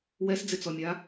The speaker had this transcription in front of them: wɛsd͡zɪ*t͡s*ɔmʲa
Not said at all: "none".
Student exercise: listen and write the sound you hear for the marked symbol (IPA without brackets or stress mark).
t͡s